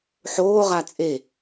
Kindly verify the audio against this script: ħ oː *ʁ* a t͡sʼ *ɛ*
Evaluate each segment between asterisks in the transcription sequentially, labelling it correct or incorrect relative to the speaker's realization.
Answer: correct, incorrect: e

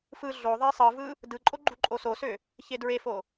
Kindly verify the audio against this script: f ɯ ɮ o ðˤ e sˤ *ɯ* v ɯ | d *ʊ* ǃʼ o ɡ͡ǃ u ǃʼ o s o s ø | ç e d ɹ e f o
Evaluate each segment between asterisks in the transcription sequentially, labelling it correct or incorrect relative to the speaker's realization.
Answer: correct, incorrect: ɯ

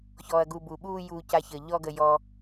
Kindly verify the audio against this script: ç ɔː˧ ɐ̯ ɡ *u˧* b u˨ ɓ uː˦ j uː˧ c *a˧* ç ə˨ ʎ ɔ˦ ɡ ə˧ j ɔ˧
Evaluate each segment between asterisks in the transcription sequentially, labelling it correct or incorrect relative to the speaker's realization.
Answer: correct, correct

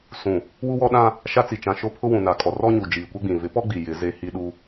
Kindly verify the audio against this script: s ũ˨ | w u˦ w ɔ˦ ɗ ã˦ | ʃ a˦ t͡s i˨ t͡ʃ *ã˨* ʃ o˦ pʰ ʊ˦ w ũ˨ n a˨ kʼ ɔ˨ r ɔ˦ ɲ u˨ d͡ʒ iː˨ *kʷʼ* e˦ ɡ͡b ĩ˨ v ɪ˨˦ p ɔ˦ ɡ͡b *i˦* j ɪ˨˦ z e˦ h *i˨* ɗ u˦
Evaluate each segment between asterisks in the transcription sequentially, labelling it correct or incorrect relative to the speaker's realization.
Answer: correct, incorrect: kʷ, incorrect: i˨, incorrect: i˦

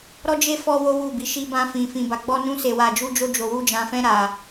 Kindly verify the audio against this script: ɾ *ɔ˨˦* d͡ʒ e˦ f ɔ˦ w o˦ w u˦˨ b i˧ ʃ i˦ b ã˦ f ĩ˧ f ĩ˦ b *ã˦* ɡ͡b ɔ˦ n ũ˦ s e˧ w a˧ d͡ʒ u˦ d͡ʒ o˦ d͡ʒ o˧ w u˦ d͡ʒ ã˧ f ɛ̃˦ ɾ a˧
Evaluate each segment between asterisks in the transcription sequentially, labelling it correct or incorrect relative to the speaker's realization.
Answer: incorrect: ɔ˦, incorrect: a˦

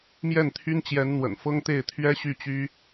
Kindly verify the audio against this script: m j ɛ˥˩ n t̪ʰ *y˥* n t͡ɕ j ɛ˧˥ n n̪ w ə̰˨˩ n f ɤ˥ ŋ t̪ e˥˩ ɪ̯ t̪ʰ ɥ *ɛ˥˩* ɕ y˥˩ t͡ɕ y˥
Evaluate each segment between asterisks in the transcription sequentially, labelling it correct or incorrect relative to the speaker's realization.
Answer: correct, incorrect: ɛ˥

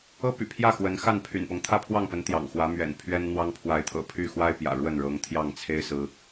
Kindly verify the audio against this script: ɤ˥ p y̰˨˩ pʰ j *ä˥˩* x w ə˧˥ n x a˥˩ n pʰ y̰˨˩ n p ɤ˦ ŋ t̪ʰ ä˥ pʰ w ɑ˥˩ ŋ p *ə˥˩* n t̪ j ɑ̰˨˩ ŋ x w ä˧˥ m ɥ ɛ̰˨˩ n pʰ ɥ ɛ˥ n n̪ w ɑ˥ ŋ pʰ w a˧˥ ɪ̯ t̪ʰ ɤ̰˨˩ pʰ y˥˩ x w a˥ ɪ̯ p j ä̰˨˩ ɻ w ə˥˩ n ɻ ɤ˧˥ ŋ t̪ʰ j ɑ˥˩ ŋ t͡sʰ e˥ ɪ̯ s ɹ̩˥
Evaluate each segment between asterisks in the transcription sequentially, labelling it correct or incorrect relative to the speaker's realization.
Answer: correct, incorrect: ə˧˥

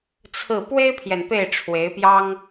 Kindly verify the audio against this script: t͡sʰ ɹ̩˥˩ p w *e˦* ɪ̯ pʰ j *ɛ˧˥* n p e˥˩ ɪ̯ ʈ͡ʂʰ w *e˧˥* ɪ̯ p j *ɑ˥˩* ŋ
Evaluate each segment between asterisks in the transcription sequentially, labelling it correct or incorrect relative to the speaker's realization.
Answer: incorrect: e˥, incorrect: ɛ˨, correct, incorrect: ɑ˥

